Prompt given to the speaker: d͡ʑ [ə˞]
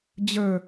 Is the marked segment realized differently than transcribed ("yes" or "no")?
no